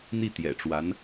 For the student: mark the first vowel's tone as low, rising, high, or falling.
falling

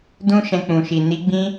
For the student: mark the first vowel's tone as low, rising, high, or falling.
high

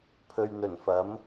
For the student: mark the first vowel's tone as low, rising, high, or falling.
low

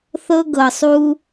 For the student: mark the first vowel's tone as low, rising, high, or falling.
high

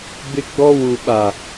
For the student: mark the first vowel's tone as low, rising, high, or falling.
high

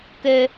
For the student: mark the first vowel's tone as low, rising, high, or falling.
high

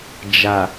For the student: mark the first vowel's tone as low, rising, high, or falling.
low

